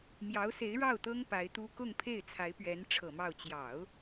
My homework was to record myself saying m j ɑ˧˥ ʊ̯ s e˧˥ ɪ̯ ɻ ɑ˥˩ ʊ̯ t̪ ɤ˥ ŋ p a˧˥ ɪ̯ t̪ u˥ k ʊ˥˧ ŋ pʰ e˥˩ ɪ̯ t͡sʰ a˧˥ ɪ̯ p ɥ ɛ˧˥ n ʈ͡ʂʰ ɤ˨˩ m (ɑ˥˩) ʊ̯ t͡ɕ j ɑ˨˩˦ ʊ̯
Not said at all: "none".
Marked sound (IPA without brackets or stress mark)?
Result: ɑ˥˩